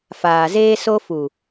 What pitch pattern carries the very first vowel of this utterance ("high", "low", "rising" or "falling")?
low